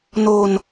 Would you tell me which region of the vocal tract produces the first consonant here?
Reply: tongue tip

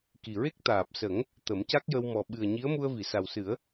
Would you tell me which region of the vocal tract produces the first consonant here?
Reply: velum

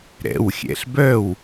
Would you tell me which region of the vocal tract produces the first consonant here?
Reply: tongue tip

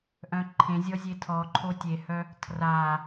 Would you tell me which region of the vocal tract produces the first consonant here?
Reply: throat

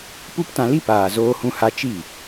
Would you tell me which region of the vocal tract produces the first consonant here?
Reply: lips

